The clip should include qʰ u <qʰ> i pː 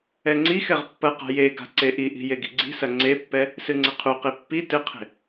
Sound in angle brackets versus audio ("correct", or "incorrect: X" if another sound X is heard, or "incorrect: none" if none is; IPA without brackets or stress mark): incorrect: q